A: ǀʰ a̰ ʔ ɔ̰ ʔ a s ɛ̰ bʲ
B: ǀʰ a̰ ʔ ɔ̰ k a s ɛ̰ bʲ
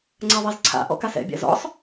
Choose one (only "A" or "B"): B